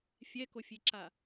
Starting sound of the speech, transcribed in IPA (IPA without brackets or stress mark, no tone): fʲ